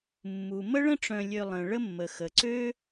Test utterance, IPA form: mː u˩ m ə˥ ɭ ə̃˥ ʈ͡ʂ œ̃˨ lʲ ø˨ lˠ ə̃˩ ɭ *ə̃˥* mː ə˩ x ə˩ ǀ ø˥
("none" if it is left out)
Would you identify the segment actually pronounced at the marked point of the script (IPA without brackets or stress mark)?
ə˥